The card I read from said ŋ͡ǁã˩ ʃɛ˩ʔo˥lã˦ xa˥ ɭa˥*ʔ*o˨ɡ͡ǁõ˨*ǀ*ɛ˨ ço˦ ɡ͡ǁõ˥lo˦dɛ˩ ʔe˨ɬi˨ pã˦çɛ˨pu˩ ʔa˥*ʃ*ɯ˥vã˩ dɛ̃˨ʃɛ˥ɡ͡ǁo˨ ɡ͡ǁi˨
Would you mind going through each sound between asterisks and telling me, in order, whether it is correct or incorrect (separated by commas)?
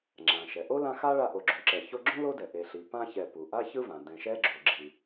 correct, incorrect, incorrect